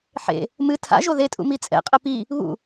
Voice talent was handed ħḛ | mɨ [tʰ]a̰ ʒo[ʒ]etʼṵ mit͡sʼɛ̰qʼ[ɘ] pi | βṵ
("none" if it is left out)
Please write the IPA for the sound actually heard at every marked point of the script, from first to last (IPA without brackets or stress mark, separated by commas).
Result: tʰ, ð, ɘ